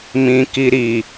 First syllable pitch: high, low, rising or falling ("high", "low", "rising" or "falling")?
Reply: low